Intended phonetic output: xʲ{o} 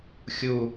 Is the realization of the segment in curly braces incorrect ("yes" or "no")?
yes